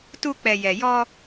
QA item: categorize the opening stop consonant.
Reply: plain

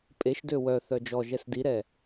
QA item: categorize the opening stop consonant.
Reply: ejective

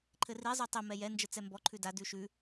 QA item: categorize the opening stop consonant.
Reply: click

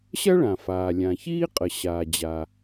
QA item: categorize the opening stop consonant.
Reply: ejective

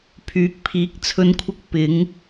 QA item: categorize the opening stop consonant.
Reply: aspirated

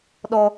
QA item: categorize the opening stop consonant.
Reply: implosive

